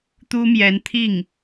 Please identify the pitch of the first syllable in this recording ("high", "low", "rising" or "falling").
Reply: high